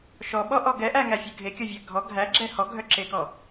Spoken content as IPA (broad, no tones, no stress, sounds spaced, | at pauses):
ʃ ɔ ɓ ɔ ʔ ɔ ɡ ɛ ʔ æ ŋ æ fʲ ø ɡʱ e kʲ ɔ vʲ æ ɡʱ ɔ ɡʱ æ ɡ͡ǁ ɛ h ɔ ɡʱ œ ǁ e k ɔ